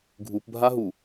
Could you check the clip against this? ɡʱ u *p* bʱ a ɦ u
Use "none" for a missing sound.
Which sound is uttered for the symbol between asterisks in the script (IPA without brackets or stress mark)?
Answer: p